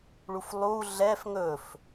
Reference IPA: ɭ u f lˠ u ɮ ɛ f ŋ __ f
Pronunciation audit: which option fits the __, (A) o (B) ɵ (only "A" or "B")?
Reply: B